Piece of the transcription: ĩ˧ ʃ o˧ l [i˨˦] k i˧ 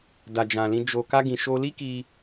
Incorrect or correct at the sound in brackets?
incorrect: i˦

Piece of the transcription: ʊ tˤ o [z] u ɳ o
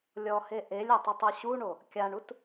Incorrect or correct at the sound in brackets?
incorrect: ɕ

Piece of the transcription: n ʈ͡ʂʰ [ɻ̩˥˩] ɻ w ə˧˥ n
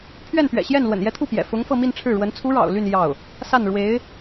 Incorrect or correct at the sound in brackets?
correct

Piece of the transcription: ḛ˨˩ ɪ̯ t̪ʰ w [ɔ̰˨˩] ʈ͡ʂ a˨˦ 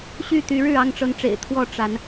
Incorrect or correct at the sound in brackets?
incorrect: ɔ˥˨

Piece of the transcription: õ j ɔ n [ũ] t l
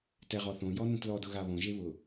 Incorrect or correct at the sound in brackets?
correct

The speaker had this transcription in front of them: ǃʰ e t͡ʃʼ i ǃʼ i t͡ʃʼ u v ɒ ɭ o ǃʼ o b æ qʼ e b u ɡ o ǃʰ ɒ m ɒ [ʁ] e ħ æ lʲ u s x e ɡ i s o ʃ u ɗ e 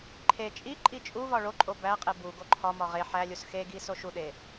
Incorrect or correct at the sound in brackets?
correct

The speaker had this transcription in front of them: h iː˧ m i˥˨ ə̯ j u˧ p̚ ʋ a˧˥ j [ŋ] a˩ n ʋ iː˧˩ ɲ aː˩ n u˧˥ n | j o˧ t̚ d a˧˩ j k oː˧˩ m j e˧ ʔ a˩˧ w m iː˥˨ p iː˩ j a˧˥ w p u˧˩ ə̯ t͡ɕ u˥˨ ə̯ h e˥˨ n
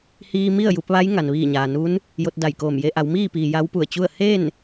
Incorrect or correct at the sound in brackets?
correct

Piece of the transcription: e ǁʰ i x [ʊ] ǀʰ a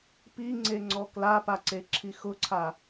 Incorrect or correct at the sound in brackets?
correct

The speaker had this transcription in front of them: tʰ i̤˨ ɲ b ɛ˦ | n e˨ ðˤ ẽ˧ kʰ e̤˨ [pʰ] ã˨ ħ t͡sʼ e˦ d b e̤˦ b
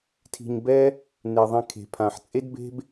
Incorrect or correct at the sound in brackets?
correct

